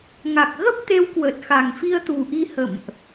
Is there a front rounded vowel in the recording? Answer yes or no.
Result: no